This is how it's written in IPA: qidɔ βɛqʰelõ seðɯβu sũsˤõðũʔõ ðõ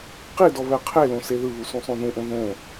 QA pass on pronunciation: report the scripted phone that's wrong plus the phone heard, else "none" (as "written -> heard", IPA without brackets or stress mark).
none